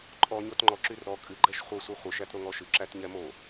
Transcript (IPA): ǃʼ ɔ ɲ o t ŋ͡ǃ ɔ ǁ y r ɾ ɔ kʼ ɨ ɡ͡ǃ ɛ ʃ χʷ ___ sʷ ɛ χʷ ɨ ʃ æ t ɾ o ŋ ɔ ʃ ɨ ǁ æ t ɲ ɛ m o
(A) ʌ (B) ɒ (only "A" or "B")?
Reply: A